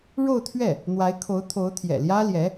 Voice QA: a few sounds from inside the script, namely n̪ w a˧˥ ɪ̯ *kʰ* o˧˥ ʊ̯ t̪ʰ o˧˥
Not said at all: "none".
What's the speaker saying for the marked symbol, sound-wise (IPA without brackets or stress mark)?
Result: kʰ